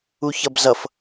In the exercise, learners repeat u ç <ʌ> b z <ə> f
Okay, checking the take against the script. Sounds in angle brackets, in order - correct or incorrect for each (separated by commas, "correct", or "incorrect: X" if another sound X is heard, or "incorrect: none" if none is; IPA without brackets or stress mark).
correct, incorrect: ʌ